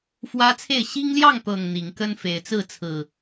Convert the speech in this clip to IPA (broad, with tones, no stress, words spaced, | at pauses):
fwä˦t͡sʰe˥˨ɪ̯ ɕi˦ŋljɑ˥˨ŋt̪ɤ˨˩ŋ n̪i˨˦ŋkə˦nfe˨˦ɪ̯t͡sɹ̩˥˨ t͡sʰɹ̩˨˩